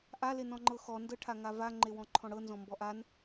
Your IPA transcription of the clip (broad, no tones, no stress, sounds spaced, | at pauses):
ʔ a l e n ɔ̃ ŋ͡ǃ ɤ x ɔ n d ɤ ʈʰ a ŋ a v a ŋ͡ǃ e w ɔ̃ ǃʰ ɔ̃ ɽ ɤ n z ɔ̃ m b ɔ ʔ a n